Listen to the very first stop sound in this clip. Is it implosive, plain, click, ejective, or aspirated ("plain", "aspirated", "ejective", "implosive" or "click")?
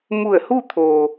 aspirated